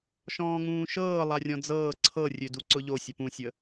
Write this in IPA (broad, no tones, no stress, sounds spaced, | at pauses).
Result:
ʃ ɔ̃ː ŋ ũː ʃ ɤː lˠ a rʲ ɔ̃ d͡z ɤː ǀʰ ɤ rʲ ø d u ǀ ʊ ʎ o sʲ ə p ũ sʲ ə